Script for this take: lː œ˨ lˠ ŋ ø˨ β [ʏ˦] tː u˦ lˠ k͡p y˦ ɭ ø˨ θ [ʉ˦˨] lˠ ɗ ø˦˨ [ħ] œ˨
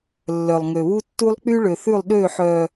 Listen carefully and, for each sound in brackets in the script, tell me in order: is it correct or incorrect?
incorrect: u˦, correct, correct

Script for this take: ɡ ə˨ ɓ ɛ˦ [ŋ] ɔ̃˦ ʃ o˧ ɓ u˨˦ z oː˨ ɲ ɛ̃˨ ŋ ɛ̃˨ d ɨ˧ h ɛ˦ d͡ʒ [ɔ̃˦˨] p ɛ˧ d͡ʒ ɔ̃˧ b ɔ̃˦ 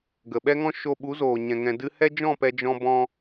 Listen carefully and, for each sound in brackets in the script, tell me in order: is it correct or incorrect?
correct, correct

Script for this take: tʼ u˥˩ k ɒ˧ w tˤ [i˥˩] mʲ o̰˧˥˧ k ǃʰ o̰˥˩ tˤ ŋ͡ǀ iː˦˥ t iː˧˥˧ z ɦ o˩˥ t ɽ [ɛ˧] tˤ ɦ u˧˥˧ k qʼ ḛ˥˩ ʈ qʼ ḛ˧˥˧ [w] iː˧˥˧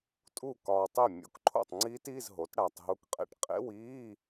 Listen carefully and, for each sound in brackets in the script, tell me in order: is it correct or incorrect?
correct, incorrect: æ˧, correct

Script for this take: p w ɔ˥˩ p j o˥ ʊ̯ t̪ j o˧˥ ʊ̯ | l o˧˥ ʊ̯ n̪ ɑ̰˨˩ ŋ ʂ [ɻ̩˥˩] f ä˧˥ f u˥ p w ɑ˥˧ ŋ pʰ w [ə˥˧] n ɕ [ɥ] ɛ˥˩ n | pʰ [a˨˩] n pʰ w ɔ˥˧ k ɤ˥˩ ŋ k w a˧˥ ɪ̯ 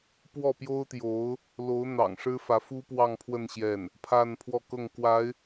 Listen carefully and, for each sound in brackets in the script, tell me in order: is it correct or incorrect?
incorrect: ɻ̩˥, correct, incorrect: j, incorrect: a˥˧

